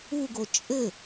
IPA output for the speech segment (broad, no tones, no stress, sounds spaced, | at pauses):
u ɡ o t͡ʃʼ ɘ